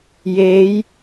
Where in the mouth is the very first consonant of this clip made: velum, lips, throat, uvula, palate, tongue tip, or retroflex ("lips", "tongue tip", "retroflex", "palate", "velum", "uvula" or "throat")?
palate